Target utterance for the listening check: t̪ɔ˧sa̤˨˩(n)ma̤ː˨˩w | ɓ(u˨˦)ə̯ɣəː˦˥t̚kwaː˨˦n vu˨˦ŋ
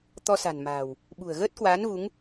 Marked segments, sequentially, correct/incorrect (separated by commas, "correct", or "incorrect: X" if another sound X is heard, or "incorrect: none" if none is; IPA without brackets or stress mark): correct, incorrect: ṳ˨˩